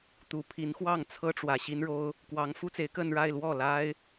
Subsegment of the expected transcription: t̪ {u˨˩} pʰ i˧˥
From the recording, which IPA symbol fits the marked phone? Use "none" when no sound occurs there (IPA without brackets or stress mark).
u˨˩